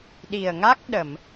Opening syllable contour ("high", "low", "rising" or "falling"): low